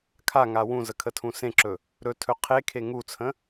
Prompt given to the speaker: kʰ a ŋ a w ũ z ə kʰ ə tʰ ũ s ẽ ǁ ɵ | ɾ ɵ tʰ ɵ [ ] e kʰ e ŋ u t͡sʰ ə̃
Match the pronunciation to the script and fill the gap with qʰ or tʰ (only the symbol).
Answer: qʰ